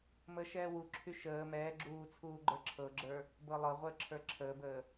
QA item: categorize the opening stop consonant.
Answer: click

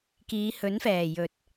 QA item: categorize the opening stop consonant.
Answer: plain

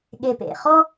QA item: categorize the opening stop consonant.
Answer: implosive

